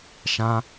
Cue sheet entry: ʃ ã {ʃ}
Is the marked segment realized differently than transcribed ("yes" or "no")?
yes